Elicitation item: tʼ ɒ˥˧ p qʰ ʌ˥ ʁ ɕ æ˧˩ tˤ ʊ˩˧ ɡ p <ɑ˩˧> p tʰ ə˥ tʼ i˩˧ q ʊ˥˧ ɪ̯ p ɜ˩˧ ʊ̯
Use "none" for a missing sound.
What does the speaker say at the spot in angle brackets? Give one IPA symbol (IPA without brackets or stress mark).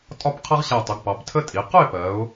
ɑ˩˧